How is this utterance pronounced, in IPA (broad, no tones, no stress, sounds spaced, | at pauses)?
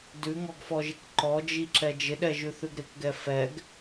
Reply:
d ʉ ŋ ɔ ɡ f ɔ ʒ ɪ k ǃ ɔ d͡ʒ i ǁ ɛ d͡ʒ ɪ ɗ ɛ ʒ ʉ θ ʉ ɡ ɾ ɪ k ɡ ɛ f ɛ ɡ